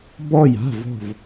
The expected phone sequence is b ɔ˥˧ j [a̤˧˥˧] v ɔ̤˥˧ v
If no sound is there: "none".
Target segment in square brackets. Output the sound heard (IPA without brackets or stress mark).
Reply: a̤˧˥˧